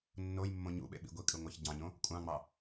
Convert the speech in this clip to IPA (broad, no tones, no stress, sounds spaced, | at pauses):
nː o j mː õ ɲ ṵ ɓ ḛ ɓ ḭ ɡʷ i kʼ ɯ ŋʷ ɑ ç ɟ ɑ̃ ɲ õ | kʷʼ ɑ̃ ŋ͡m ɑ